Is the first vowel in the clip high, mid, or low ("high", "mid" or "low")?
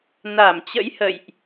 low